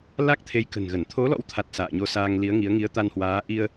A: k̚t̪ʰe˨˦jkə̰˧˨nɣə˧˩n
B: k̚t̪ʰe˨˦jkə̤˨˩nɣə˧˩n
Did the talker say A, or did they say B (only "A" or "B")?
B